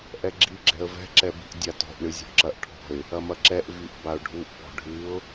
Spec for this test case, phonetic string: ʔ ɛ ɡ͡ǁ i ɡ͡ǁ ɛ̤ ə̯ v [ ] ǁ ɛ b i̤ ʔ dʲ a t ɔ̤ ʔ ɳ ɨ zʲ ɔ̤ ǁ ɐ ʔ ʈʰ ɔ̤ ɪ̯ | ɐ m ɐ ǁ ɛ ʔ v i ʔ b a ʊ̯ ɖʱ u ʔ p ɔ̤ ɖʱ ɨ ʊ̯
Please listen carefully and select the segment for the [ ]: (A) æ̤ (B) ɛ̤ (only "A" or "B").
B